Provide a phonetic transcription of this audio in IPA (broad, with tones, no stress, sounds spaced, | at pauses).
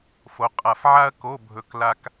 f o˨˦ qʼ a˧˩ f ʕ a˥ ɐ̯ k o˧˥˧ bʱ ɵ˧˩ k l a˥ k